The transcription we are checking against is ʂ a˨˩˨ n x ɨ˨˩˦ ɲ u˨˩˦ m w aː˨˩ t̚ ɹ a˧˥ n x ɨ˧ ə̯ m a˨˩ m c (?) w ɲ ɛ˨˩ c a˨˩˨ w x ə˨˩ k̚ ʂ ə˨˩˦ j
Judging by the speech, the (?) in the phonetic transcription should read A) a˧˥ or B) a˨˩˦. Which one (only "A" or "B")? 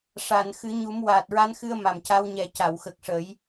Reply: A